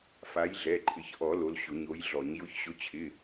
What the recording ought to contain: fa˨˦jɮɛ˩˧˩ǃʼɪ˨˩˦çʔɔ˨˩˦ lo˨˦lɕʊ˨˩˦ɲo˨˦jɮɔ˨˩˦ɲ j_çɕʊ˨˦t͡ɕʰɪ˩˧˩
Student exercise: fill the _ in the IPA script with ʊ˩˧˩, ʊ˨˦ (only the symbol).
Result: ʊ˨˦